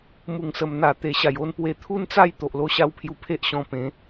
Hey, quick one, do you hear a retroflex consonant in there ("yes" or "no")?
no